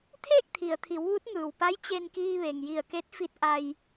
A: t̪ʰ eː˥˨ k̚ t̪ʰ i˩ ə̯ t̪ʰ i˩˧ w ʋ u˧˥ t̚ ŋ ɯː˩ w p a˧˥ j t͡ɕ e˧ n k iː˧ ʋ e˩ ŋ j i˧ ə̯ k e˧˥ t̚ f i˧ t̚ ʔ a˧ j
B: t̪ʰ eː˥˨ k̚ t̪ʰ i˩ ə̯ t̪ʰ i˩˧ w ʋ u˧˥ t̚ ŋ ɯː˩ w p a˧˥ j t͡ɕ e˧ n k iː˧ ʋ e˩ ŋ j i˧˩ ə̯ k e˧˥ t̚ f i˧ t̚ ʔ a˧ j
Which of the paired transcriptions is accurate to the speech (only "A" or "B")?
B